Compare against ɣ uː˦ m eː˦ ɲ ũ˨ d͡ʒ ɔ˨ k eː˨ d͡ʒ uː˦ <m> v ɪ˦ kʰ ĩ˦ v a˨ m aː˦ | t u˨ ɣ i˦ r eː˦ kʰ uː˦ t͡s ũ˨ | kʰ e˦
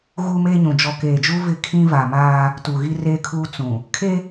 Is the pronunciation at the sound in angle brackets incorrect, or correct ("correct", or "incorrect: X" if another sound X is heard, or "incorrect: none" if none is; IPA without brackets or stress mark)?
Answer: incorrect: none